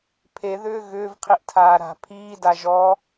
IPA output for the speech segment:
pʰ e ð ʏː ɣ ʏː v qʰ i ʔ tʰ aː ɾ a̤ pʰ iː d a ʒ ɔ

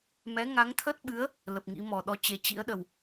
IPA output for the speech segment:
m ɛ˨˦ ŋ a˨˦ ŋ t̪ʰ ə˦˥ t̚ ɓ ɨ˨˦ ə̯ | l ə˨˩ p̚ ŋ ḭ˧˥ m ɔ˨˩ ɗ ɔ˨˦ t͡ɕ e˨˩ t͡ɕ ḭ˧˥ ə̯ ɗ ə˨˩ w

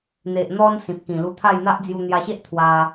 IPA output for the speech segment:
n̪ e˨ ʔ n̪ ɔ˧ n s ĩ˨ p̚ k ĩ˨˩ l u˧ t̪ʰ a˥˧ j n̪ a˦ ʔ d͡z j u˧ n̪ j a˧ ɕ e˦ ʔ t̪ʰ w a˧

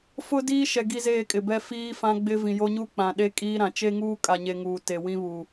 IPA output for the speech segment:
f ʊ˦ d iː˦ ʃ ɛ˨ ɡ i˦ z eː˦˨ kʼ ɪ˨ b ɛ˦ f iː˦ f ã˦ ɡ͡b ɪ˦ v ĩ˨ j o˦ ɲ u˦ k͡p ã˨ ɗ e˦ kʼ iː˦ ɾ ã˨ t͡ʃ e˦ ŋ uː˦ kʼ a˨ ɲ e˨ ŋ uː˨ t e˨ w ĩ˦ β u˨

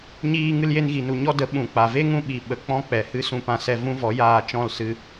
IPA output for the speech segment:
ɲ iː˧ ŋ ɨ˧ l j e˧ n ɣ i˨ n u˨ ɲ ɔ˦ d ə˨˦ ɓ ũ˨ k͡p a˨ v e˦ ŋ ũ˧ ɓ i˨ ɓ ə˨˦ k͡p ɔ̃˦ k͡p ɛ˨ h ɨ˦ s ũ˧ p ã˧ s ɛ˧ v ũ˦ v ɔ˨˦ j aː˧ t͡ʃ ɔ̃˦˨ l s ɨ˧

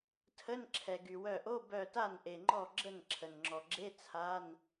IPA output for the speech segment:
tʰ ə˧˥˧ n ǁʰ ɛ˩ ɡ y˩ w œ˧˩ ʔ o˧˥˧ b œ˧˩ t a˥˩ n ʔ e˩ ŋ͡ǃ ɔ˥˩ ɡ͡ǁ ə˥˩ n ǁʰ ə˩ n ŋ͡ǁ ɔ˩ ɡ͡ǁ e˧˥˧ t͡sʰ a˧˥˧ n

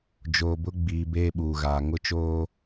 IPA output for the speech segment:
d͡ʒ oː˨ b ʊ˦ ɡ͡b iː˨ b eː˦ ɓ uː˨ ɣ aː˨ ŋ ʊ˦ t͡ʃ oː˦

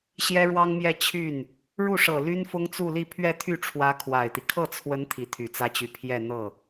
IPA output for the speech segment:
ɕ j ɛ˥ ɻ w ɑ˥ ŋ m j ɛ˥˧ t͡ɕʰ y˥˩ n | ɻ u˥˩ ʂ ɤ˨˩ l y˥ n f ʊ˥ ŋ t͡s u˥˧ l i˥˧ pʰ ɥ ɛ˥˧ t̪ʰ y˥˩ ʈ͡ʂʰ w ä˧˥ kʰ w a˨˩ ɪ̯ t̪ i˦ kʰ ɤ˥˩ t͡sʰ w ə˧˥ n t̪ʰ i˧˥ t̪ʰ y˨˩ t͡s ä˥ t͡ɕ y˧˥ pʰ j ɛ˥˧ n̪ ɤ˥˩

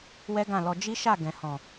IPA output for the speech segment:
w ɛ˦ ɡ ã˦˨ l ɔ˧ d͡ʒ i˦ ʃ a˦˨ ɡ ɛ̃˨ h ɔ̃˨

